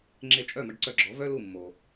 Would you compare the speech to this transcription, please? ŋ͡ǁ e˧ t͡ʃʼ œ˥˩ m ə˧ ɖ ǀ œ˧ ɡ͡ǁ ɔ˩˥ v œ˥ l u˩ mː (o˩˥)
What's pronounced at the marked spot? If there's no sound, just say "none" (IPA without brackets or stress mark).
o˩